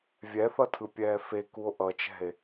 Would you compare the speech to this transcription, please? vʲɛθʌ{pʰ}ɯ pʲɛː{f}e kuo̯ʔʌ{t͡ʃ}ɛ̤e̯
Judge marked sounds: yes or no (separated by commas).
no, yes, yes